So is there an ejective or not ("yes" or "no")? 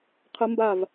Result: no